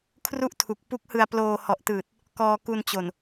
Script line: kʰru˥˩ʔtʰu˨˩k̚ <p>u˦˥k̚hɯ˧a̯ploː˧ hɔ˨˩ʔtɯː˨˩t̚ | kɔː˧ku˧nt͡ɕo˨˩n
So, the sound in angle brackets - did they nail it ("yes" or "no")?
yes